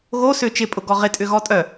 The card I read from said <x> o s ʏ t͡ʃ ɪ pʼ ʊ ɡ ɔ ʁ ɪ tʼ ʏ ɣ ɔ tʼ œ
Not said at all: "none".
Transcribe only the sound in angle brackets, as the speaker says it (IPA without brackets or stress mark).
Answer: ɣ